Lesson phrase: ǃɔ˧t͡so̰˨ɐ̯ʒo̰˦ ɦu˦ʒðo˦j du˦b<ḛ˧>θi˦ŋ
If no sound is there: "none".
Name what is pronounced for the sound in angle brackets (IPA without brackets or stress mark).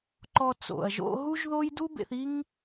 ḛ˧